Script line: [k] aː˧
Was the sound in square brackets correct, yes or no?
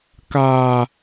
yes